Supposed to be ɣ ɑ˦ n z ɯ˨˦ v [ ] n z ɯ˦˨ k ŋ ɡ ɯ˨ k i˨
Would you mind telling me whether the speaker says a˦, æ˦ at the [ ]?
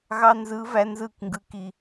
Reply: æ˦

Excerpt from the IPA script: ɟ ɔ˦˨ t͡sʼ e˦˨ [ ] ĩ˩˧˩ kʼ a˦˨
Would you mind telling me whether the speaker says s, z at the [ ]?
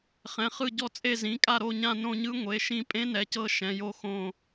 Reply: z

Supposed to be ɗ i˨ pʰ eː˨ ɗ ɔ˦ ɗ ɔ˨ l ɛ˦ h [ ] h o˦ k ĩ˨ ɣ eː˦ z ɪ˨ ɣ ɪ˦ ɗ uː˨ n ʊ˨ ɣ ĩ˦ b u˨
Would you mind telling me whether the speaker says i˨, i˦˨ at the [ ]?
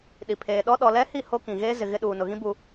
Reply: i˦˨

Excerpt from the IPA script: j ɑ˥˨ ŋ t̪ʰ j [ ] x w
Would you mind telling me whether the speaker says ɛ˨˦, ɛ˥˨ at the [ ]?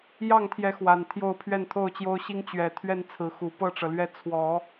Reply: ɛ˨˦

